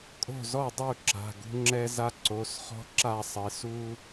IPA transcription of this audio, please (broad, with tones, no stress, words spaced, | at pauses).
kʼo̤˦˨zɔ˦˨dˤu˦˨ ǁa̤˩˧˩ɡṳ˦ ŋ͡ǁɛ˦za˦ ǀo˩˧˩sχɔ̤˦ǁa˦˨ sˤɪ˩˧su˦